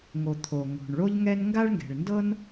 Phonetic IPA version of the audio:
ŋ o˩ t̪ʰ o˩ ŋ o̤˩ ɳ ɭ o˥ ʎ ŋ ɛ˥ n ŋ ɡ a˥ ɭ ŋ ɡ ɛ̤˩ ɭ n d ɤ˥ n

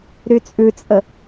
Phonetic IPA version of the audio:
ɾ y t͡sʼ ʉ t͡sʼ ə

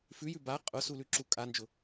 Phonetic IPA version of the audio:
f ʉ j ʉ b a qʼ ʊ s u l ʉ ǁ u kʼ a n d͡ʒ ʊ

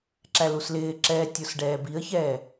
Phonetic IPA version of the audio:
ǁ æ l u s l ɪː ǁ ɛː tʲ ʊ s ɖ ɛː b i ə̯ ç ɛː

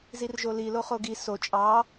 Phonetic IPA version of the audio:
z i r ʒ o l i l o χ o ɡ i s o t͡ʃʼ ɑ

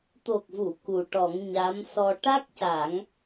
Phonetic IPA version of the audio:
t̪ o˨˩ k̚ v u˨˩˨ k u˨˩ ʈ ɔ˨˩˦ ŋ ɲ a˧˥ m s ɔ˧ ʈ a˦˥ k̚ c a˨˩˦ ŋ

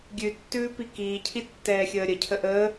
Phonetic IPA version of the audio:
ɡʲ ʉ tː ʉː p i k iː cʰ i tː ɛː xʲ əː ɾʲ ə cʰ ə ʔ ə

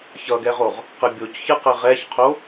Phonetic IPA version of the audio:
ç ʌ ɡ ɛ ʁ o ʁ | q ə bʲ o c ç ɨ q ɘ ʁ ɛ ç qʰ o

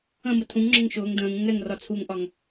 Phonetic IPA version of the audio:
ə̃ m ə tʰ ũ ŋ ŋ͡ǁ ʊ ŋ ʃ ʊː ŋ d ə̃ː ŋ ũ ŋ ɛ ŋ r ɒ t͡sʰ u ŋ ʔ ɒ ŋ

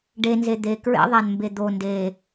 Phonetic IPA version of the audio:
ɖ e n z e d̪ e k ɹ ḛ ðˤ æ n m b e d̪ o n d e

